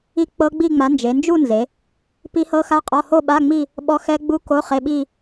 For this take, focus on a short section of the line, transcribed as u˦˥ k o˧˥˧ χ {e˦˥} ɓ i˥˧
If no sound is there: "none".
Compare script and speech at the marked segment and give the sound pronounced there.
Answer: e˧˥˧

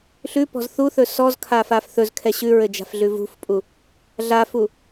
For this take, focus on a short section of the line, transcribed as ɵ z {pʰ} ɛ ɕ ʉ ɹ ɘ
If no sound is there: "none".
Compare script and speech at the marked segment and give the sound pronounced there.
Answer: kʰ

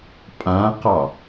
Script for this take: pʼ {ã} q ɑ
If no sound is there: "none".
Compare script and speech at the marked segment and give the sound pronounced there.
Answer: ã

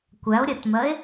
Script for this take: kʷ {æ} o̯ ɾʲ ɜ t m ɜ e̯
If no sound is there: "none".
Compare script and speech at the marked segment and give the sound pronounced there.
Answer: æ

